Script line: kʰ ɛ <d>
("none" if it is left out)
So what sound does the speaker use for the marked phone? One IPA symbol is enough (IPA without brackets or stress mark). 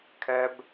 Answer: b